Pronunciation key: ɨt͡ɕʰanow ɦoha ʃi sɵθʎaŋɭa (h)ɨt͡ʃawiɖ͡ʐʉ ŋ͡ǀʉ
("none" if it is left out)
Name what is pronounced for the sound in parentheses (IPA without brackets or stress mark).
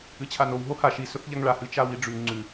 h